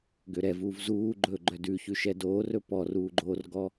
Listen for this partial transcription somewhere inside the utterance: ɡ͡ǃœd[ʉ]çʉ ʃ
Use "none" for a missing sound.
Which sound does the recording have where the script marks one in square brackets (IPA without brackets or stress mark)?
ʉ